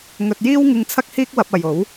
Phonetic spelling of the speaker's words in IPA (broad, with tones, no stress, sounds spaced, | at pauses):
ŋ ɵ˧ t̚ j iː˥ w ŋ ɪ˧ ŋ t͡sʰ ɐ˥ k̚ h iː˥ k̚ w ɐ˧ p̚ ɐ˨ j o˨˥ w